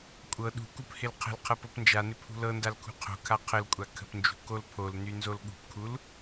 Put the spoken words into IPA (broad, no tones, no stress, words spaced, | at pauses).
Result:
kʷʼɤ ɗṳkup hɪlqʰə̤lqʰɤ pɤpnd͡ʒanɪ pʰṳlɤndal kʰṳqʰo̤kʰa qʰəlkʷʼa kʰə̤pnd͡ʒṳ kolpʰolny nzolɠṳpkʰul